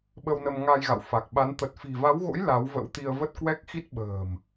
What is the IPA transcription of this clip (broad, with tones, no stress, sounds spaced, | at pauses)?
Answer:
ɓ ə˧ w n ə˧ m ŋ a˧ j ɣ a̰˧˨ w f a˨˩ k̚ ɓ a˨˦ n t̪ ə˨˩ t̚ f i̤˨˩ v a˨˦ w ɣ o̰˧˥ j l a˨˦ w v ə̰˧˥ w t̪ i˧ ə̯ v ə˦˥ t̚ k w ɛ˦˥ k̚ x i˦˥ t̚ ɓ ə̤ː˨˩ m